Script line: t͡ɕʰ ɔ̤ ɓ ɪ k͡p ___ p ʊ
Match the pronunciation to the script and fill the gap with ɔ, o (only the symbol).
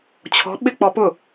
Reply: ɔ